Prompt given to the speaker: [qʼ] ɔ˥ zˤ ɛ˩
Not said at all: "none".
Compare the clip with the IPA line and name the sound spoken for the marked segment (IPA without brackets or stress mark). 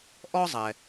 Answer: ʔ